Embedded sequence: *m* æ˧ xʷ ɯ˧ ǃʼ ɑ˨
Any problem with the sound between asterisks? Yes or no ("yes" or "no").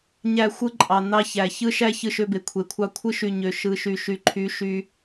yes